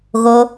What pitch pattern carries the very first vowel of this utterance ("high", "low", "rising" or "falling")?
high